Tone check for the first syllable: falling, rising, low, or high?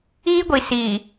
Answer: high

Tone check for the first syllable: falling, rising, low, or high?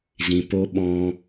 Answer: low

